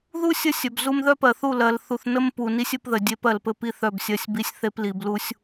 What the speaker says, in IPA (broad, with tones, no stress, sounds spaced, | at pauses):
ð u˦ sʲ ə˦ sʲ œ˨ b z u˦ m ð œ˦ p ɜ˨ θ u˦˨ l ɜ˨ l θ u˨ θ n ə˦ m p u˨ n i˦ sʲ ɘ˦ p ð ə˨ dʲ e˦ p ɜ˨ l p ɘ˦ p i˦ θ œ˦˨ b sʲ ɜ˦˨ sʲ b i˦ sʲ θ e˦ p l i˨ b l u˦ sʲ